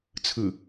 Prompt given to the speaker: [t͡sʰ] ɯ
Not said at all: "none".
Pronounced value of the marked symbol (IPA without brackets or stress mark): t͡sʰ